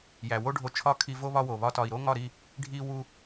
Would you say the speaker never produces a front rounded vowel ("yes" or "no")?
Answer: yes